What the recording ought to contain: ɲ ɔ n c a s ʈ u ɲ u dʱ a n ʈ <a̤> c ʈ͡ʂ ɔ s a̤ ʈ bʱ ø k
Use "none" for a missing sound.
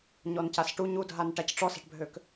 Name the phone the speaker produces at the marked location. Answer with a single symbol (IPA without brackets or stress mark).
a